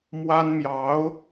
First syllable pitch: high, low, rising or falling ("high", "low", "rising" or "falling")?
high